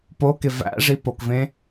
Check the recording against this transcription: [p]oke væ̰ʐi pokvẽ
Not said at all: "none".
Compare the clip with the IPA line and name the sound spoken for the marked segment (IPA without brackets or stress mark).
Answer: p